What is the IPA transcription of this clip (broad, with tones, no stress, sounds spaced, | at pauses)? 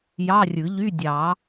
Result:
j ɑ˧˥˧ rʲ ɯ˨˩˦ ʎ y˧˥˧ dʲ ɑ˨˩˦